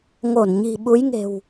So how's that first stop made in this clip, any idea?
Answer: implosive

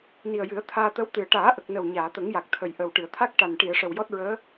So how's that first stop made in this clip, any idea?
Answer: aspirated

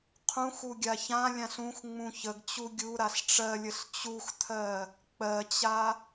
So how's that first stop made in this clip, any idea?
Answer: aspirated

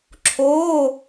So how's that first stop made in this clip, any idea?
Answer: click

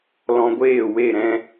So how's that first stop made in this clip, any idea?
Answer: plain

